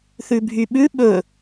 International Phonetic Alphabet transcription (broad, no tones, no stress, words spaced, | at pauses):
θʉbʱyɓʉ ɓɵ